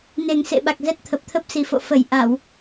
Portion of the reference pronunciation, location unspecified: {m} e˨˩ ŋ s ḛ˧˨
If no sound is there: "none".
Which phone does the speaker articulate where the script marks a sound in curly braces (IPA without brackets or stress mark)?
n